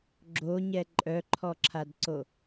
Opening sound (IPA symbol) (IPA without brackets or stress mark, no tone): ɡ͡ǁ